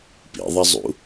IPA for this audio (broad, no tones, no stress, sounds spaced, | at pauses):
p ḭ ðˤ ɐ zˤ ṵ